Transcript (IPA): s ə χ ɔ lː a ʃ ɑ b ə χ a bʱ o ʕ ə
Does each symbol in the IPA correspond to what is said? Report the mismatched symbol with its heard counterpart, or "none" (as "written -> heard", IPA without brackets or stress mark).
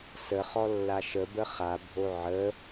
ɑ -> ə